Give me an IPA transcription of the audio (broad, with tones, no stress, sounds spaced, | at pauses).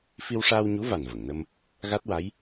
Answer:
f i˧ w ʂ aː˧ w ɲ u˧˥ v a˨˩ n v ə˨˩˨ ŋ n ə˧ m | ɣ a˦˥ t̚ w a˧˥ j